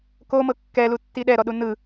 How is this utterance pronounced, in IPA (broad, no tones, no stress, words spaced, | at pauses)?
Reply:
komɤ kːɛlutːi ɗɛɾɔɗu nɯ